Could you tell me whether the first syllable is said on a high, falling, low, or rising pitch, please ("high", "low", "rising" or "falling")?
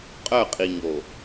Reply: falling